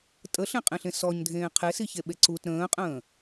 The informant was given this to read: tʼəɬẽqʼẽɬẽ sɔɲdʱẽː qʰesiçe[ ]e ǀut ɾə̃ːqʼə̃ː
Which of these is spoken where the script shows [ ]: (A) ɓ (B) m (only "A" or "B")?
A